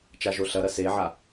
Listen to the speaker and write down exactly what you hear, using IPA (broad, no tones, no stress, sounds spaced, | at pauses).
t͡ʃ a ʒ o ɬ ɐ ɾ ɐ s e ʕ a